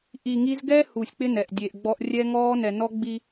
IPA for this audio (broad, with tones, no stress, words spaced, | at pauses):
ʔi˨ŋi˦z ɡɛ˦ huː˨sʲk͡pɪ˦ nɛ˨ʔdʲe˨ʔɡ͡bɔ˦ʔ rʲɛ˦ŋɔː˦ nɛ˨nɔ˦ɡ͡bi˦